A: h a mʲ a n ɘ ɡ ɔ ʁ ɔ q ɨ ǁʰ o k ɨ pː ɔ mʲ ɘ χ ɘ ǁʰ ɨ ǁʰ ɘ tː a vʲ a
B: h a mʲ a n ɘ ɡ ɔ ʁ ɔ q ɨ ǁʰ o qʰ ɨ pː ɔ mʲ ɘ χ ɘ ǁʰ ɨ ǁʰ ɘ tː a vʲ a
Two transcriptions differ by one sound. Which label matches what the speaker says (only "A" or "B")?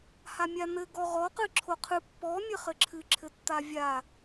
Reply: B